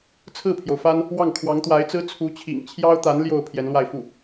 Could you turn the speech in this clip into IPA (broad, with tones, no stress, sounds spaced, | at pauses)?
t͡sʰ ɹ̩˥˩ pʰ j o˩ ʊ̯ f a˥ n | w ɑ˥˩ ŋ kʰ w ɑ˧˥ ŋ t̪ w a˧˥ ɪ̯ t͡s ɹ̩˥ t͡sʰ u˧˥ t͡ɕʰ ḭ˨˩ ŋ t͡ɕʰ j ɑ˥ ʊ̯ t̪ a˧˥ n l j o˥˩ ʊ̯ pʰ j ɛ˧˥ n l w a˥˧ ɪ̯ f u˥˩